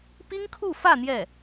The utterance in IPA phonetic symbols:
pi˥ŋkʰu˥˧ fä˥˧ n̪jɛ˥˩

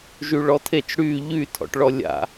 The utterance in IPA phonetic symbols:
ʒyɭɔtʰet͡ʃ ɽy ʎytʰɔ̰ʈɭɔ lʲa̰

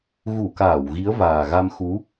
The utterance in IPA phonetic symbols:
ɣu˧˩kaː˧˩w ɣi˨˦ə̯vaː˨˩ɣa˧mxu˨˦

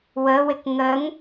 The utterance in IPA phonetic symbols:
wəwɪk ŋəŋ

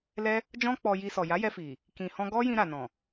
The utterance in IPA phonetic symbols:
lɛ˦ | d͡ʒɔ̃˦k͡pɔ˧ ji˧sɔ˨ ja˨˦jɛ˧fi˨ | kĩ˨hɔ̃˧ ɡɔ˦jĩ˧ ɾa˨nɔ̃˨

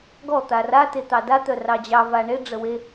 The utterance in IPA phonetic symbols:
ɡɔ t̪ara tet̪ɑda t̪œrɑd͡ʑɑ vaɳe ɖ͡ʐəwe

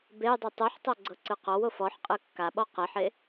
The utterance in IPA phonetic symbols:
bejdˤi tˤuħtˤɤ ɡ͡ǀɤǀɯqɔwof ɔħqʼɯ kːaɓɔ qeħe

